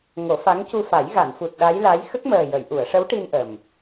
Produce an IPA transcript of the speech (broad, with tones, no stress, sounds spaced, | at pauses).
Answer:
ŋ o˨˩˦ f a˧˥ ŋ c u˧ f a˨˩˦ j ɣ a˨˩˨ n f u˨˩ t̚ ɗ a˧˥ j l a˧˥ j x ə˦˥ k̚ m əː˨˩ j ə˨˩˨ j ʔ u˨˩˨ ə̯ ʂ ə˧˥ w ʈ i˧ n ʔ ə˨˩ m